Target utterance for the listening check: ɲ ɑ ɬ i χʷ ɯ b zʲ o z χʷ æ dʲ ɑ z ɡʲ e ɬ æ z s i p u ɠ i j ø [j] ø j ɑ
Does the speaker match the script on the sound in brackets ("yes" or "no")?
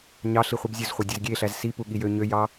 no